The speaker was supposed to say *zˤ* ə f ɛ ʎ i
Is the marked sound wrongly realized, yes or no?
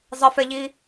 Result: no